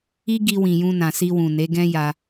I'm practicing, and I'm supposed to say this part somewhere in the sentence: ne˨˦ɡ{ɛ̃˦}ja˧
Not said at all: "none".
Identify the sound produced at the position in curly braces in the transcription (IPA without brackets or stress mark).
ɛ̃˦